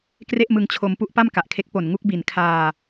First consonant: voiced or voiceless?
voiceless